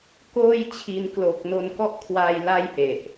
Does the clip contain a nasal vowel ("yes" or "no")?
no